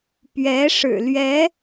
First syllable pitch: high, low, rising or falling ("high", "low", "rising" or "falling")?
rising